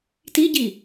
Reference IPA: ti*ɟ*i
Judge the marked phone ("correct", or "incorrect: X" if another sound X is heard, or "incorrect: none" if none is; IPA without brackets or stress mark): correct